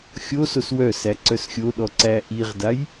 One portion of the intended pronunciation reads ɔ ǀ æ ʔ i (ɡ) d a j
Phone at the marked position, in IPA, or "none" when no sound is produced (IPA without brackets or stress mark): ʁ